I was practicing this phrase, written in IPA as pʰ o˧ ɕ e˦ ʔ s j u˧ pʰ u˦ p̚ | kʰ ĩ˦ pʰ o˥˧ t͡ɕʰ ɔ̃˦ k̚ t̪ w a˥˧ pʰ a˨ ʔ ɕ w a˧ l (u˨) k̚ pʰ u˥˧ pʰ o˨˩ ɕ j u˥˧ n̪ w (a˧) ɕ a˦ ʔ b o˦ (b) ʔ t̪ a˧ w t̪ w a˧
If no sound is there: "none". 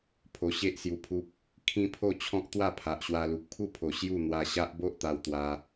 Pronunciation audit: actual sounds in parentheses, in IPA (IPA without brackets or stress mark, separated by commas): u˨, a˧, none